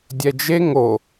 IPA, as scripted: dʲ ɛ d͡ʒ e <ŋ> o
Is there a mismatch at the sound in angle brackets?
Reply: no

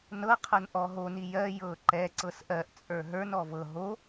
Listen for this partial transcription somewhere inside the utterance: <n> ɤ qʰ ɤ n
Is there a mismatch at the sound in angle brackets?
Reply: no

